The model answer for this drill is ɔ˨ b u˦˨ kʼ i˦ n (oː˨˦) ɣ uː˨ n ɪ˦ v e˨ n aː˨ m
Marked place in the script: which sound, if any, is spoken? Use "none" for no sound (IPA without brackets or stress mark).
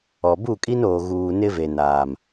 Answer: oː˨